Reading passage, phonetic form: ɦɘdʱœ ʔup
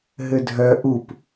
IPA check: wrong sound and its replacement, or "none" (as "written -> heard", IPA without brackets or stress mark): none